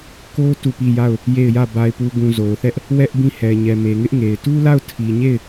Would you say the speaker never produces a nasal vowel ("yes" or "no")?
no